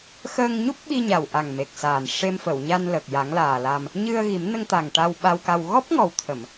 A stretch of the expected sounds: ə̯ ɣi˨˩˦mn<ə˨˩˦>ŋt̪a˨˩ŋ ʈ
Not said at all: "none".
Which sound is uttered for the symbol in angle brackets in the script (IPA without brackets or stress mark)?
ə˧